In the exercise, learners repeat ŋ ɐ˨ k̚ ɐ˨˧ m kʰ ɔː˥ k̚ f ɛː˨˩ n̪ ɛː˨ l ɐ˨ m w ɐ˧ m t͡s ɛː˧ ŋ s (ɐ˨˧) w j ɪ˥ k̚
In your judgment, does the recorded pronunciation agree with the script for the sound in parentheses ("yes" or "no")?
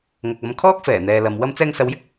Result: yes